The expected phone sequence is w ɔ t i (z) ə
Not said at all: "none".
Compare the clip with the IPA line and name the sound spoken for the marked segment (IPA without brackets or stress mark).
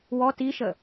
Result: ʃ